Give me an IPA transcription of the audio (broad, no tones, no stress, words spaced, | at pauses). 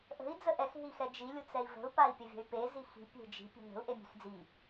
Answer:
ʔə̤i̯ d͡zəʔɛx ɦixɛd͡ʒi lʲut͡sɛi̯və̤u̯ pai̯pʲəvʲə̤y̯pe zixi̤ pʲe̤d͡ʒi̤ pʲe̤nə̤u̯ ʔemʲe̤xd͡zi